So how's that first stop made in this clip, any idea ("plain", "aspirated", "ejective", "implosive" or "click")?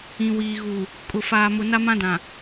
ejective